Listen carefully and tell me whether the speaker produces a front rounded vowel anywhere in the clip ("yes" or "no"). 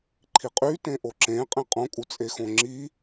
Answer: yes